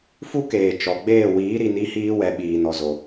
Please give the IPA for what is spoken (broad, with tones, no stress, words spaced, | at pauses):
fu˦keː˨ t͡ʃɔ˨ɡ͡beː˦˨ wiː˨˦ɾi˨ ni˧hiː˧wɛ˨ ɓiː˨nɔ˨zo˨